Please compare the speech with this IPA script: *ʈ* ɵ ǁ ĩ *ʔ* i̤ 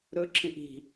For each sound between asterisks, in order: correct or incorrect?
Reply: incorrect, correct

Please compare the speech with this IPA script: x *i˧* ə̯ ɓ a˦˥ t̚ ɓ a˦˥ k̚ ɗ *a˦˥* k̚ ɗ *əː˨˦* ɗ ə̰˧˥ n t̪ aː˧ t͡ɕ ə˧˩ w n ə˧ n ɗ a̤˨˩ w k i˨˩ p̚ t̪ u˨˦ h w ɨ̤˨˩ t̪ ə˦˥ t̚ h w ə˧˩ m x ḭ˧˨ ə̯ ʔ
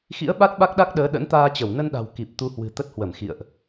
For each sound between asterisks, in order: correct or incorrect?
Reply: incorrect, correct, correct

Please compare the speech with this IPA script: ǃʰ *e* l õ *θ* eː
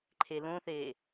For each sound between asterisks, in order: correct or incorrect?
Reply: correct, correct

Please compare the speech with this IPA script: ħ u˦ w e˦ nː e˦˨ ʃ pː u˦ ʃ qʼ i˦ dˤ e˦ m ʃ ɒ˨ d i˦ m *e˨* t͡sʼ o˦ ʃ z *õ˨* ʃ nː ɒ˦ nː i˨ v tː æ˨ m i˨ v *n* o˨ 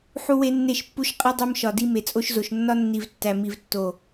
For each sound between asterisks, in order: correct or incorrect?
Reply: correct, incorrect, incorrect

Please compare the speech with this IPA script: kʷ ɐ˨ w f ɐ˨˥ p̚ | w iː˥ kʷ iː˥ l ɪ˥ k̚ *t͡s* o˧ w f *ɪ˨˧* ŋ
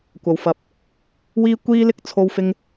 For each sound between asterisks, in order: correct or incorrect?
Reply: incorrect, incorrect

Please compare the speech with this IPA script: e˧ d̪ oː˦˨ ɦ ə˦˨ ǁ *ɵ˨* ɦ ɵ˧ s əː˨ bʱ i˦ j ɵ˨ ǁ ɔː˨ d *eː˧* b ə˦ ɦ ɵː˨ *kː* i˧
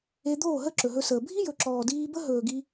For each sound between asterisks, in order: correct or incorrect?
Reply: correct, incorrect, incorrect

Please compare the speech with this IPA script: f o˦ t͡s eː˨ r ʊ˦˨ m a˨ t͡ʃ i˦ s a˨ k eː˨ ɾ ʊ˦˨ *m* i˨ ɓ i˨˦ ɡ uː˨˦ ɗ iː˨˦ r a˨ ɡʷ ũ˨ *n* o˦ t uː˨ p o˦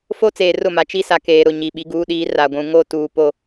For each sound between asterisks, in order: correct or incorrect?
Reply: incorrect, incorrect

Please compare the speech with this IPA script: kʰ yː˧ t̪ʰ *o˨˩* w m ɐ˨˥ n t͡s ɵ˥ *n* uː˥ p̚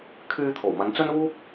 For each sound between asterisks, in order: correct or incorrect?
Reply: correct, correct

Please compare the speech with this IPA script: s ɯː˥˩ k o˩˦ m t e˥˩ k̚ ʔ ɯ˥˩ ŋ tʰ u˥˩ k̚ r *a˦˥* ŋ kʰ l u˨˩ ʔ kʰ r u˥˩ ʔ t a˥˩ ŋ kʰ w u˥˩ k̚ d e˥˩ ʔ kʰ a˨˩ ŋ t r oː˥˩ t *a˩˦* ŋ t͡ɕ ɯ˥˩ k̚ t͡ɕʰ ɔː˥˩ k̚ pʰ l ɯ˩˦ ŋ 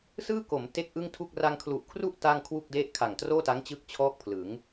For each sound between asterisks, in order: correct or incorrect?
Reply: incorrect, incorrect

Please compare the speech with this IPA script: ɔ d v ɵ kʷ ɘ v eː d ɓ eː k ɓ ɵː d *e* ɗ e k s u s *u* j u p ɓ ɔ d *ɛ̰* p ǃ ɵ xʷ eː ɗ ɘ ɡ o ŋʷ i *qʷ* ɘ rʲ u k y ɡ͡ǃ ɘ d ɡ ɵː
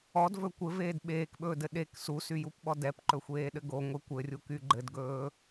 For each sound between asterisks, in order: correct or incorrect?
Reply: incorrect, incorrect, incorrect, incorrect

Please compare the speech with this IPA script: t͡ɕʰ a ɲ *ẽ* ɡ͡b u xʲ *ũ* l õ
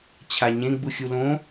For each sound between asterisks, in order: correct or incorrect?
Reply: correct, incorrect

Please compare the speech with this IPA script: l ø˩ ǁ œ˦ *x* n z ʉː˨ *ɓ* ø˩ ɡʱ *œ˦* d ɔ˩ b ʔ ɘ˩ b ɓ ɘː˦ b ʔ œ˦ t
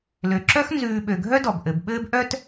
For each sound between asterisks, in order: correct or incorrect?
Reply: correct, correct, correct

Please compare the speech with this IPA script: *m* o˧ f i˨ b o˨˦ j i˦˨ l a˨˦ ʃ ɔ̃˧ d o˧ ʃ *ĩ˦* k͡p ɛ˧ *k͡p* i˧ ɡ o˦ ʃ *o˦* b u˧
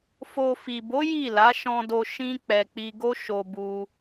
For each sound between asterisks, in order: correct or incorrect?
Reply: incorrect, correct, correct, incorrect

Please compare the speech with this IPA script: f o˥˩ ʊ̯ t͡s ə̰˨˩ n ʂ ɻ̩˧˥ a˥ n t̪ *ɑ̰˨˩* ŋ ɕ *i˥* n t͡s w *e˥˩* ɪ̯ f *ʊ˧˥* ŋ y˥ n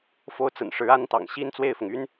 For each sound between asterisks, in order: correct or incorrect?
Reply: correct, correct, correct, incorrect

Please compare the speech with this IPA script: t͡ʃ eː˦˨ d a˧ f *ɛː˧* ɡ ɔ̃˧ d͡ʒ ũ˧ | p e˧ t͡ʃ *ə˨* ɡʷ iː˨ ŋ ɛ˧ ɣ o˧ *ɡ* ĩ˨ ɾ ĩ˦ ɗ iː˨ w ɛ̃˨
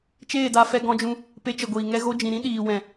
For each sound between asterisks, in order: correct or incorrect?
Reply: incorrect, correct, incorrect

